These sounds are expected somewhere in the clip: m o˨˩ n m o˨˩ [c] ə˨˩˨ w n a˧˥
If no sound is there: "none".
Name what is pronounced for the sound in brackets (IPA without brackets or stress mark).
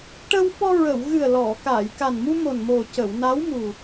c